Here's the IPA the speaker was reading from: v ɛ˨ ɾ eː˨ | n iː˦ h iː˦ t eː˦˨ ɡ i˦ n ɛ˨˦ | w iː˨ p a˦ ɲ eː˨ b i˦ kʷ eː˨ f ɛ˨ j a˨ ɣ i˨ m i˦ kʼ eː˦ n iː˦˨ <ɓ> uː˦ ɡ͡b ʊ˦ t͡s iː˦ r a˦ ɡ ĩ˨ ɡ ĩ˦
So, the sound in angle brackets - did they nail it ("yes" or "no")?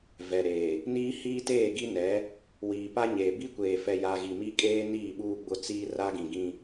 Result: yes